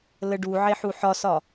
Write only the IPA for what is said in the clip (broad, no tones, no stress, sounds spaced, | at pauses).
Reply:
l ə ɖ u ʕ e ħ u ħ ɒ s ɒ